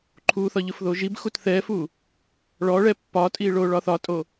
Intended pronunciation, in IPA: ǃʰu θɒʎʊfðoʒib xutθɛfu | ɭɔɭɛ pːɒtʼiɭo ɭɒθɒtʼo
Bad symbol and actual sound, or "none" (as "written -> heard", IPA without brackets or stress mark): none